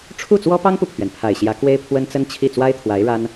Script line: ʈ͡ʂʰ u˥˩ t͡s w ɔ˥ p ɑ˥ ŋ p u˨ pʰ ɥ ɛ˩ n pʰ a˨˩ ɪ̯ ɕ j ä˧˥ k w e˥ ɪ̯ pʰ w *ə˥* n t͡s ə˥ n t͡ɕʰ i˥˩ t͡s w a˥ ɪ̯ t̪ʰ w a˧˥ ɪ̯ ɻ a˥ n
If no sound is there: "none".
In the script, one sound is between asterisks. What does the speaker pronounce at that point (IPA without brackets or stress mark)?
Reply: ə˥